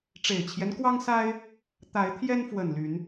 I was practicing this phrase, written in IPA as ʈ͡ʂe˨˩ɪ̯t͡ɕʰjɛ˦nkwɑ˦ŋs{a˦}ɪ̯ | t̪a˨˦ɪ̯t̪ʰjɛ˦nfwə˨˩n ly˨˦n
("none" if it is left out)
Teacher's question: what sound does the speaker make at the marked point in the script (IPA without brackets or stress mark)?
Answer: a˦